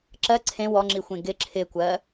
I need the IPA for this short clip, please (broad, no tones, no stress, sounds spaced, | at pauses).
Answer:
ǁ ɜ ǀʰ ẽ w ɔ ŋ͡ǁ i xʷ ẽ ɡ ɪ ǁʰ ɪ kʷ ɜ